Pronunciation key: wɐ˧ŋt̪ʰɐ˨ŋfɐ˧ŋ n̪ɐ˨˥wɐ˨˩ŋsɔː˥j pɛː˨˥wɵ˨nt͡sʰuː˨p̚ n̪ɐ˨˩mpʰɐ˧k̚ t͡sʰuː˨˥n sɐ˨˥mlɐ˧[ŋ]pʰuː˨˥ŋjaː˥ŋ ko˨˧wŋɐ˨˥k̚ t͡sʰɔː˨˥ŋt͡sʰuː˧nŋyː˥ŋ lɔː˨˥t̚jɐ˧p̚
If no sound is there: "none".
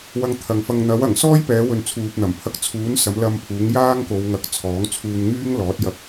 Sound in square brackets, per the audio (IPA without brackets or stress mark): m